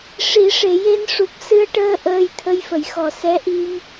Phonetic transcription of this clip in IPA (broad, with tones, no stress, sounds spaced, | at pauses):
ʂ i˨˩˦ ʂ e˨˩˨ j e˧ n ʂ u˨˩ p̚ s ɨ˧ ə̯ ʈ əː˧ ʔ əː˧ j t̪ʰ ə˧ j f ə˨˩˨ j x ɔ˨˩ s ɛ˧˥ ʔ i˧ m